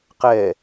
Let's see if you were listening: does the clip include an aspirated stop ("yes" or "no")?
no